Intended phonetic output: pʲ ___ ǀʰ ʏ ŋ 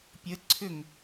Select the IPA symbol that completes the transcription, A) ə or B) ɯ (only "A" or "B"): A